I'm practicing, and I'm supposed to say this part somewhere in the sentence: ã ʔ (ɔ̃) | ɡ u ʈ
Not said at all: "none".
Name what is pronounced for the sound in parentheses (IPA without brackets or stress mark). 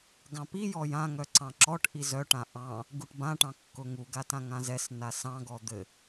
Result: ɑ̃